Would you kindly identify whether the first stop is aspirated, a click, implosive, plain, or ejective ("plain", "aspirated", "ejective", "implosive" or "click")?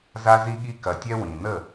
implosive